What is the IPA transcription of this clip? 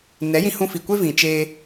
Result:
n ɛ˨˦ j ĩ˧ h ũ˧ f i˨ kʷ e˦ v ĩ˨ t͡ʃ eː˧

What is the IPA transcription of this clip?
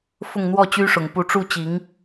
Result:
f ʊ˥˧ ŋ n̪ w ɔ˥˩ t͡ɕ y˥ ʂ ʊ˨˩ ŋ p u˧˥ ʈ͡ʂ u˥˩ t͡ɕ i˧˥ ŋ

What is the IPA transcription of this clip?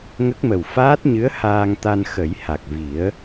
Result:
ŋ ə˦˥ k̚ m ə˨˩ w f aː˦˥ t̚ ɲ ɨ˧˥ ə̯ h aː˧ ŋ t̪ a˧ n x ə˨˩˦ j h a˨˩ k̚ v i˨˩˦ ə̯

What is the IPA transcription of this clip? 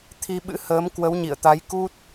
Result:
t̪ʰ i˧ ɓ ɨ̰˧˥ h əː˨˦ m k w ə˨˦ w ɲ ḭ˧˨ ə̯ t̪ a˨˦ j k u˦˥ t̚

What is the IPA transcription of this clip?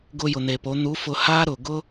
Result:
ɡ ʊ˧ j ʊ˩ n̪ e˩ p o˩˧ n̪ u˧˥ f ʊ˧ h a˥ ɾ ʊ˩ ɡ ʊ˥

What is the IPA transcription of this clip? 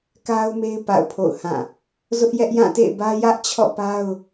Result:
k a˦ ʊ̯ m e˦ ɪ̯ p a̰˦˨ ʊ̯ pʰ o̰˦˨ ʊ̯ h ã˦˨ | z ʊ˦ ʔ j ɛ˦ ʔ j ã˦˨ t ḛ˦˨ ɪ̯ b ä˦ j ä˦ ʔ t͡ɕʰ ɔ̰˦˨ p a˦ ʊ̯

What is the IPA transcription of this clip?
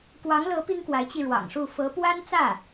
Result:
k w ɑ˧˥ ŋ l ɤ˧˥ p i˥ ŋ k w a˧˥ ɪ̯ t͡ɕ i˧ ɻ w ɑ̰˨˩ ŋ ʂ u˥˩ f ɤ˧˥ p w a˥ n t͡s ä˥˩

